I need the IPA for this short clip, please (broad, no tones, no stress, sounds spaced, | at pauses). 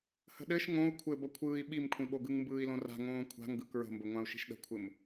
h ə̤ ɗ ɘ ʃ ŋ õ u̯ kʷʰ ɘ b ʌ kʷʰ ɯː i̯ ɓ i m kʷʰ ĩ ɓ o ɡ ɯ ŋ m b ɯː i̯ l õ r a̤ ŋ õː kʷʰ a̤ ŋ ɡ ɯ k ɹ ə̤ m b ə ŋʷ ã u̯ ʃ i̤ ʃ ɗ ə̤ kʷʰ ɘ m